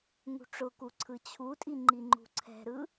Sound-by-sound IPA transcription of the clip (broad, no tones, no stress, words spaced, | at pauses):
ŋṳʈ͡ʂʊku ǀʰɯt͡ɕʰutʼi ŋ͡ǃiŋ͡ǃṳǀʰɛ̤ɾɯ